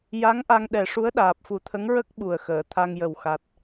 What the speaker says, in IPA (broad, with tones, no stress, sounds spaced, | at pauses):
j a˧˥ ŋ ʔ a˧ ŋ ɗ ɛ˨˩ ʂ u˧˥ ə̯ ɗ aː˨˩ p̚ f u˨˩˦ t̪ʰ ə˧˥ ŋ ɹ ə˦˥ k̚ ɓ u˨˩ ə̯ x əː˨˩˨ t̪ʰ a˧ ŋ j ə˨˩ w x a˨˩ t̚